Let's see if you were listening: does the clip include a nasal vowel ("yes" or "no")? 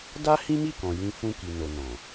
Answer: yes